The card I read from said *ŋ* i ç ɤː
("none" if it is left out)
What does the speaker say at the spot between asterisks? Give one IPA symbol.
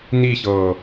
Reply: n̪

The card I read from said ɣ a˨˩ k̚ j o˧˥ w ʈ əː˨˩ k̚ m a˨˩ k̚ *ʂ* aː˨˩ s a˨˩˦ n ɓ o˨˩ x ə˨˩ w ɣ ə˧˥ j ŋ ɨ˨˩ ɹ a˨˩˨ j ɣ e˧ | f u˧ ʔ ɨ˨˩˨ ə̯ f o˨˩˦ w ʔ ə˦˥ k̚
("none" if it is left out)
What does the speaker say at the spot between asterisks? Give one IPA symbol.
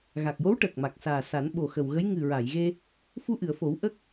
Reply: s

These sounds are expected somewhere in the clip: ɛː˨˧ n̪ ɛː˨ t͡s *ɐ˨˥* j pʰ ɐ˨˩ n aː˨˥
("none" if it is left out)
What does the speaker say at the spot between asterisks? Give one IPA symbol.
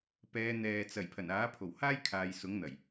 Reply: ɐ˨˩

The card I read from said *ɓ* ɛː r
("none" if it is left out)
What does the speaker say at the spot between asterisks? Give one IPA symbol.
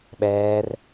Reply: ɓ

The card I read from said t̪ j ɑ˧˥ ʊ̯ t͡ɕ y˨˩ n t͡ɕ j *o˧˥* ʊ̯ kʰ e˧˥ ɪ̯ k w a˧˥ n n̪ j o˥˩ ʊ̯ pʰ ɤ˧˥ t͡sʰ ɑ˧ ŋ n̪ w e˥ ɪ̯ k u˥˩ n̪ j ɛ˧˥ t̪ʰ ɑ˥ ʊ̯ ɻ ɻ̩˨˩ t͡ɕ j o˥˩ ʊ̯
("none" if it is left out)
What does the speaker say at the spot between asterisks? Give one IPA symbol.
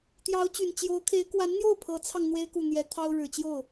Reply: o˧˥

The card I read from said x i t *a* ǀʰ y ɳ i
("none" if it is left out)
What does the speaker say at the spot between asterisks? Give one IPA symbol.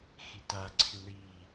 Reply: a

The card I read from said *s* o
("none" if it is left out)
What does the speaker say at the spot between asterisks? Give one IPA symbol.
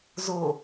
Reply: z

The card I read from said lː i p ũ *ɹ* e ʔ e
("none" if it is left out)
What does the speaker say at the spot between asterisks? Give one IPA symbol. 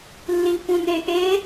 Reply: n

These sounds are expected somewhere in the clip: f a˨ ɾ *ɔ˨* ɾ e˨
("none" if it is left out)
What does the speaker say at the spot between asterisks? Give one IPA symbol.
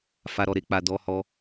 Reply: ɔ˨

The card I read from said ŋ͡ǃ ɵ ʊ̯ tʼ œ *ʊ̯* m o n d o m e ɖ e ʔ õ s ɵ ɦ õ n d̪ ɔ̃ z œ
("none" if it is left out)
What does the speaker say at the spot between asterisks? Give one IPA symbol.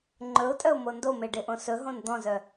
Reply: ʊ̯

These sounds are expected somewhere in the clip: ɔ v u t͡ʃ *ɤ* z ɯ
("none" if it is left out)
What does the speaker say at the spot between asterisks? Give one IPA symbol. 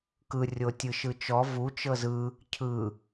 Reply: ɤ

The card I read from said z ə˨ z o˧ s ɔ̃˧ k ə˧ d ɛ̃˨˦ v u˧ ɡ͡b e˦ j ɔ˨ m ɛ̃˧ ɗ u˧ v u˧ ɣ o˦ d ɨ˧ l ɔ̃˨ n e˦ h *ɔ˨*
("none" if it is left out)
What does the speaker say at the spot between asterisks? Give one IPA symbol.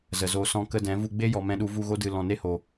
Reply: o˨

